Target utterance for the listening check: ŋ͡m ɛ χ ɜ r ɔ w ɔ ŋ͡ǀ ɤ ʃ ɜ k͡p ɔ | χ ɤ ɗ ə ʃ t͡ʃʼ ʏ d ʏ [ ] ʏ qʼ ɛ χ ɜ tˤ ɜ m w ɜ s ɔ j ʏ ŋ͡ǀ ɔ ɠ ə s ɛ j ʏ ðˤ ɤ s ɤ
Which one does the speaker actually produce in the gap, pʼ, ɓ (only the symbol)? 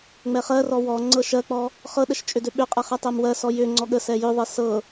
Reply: ɓ